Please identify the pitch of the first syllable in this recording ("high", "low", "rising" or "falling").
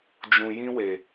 low